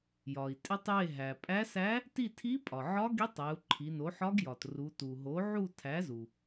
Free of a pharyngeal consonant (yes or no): no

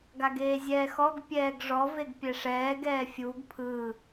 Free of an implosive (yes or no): yes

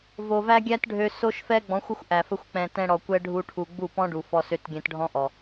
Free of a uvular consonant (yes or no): yes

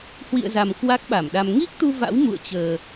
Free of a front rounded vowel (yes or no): yes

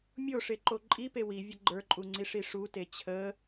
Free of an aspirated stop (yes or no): no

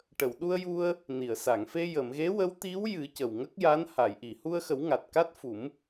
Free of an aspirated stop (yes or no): yes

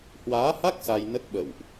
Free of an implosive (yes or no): no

